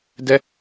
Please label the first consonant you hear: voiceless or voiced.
voiced